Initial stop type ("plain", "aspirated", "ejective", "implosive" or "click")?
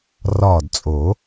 plain